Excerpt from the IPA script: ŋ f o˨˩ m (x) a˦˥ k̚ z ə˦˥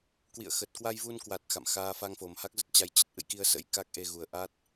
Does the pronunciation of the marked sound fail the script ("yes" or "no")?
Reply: yes